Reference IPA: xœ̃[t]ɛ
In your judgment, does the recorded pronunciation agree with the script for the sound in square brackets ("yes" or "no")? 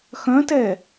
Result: yes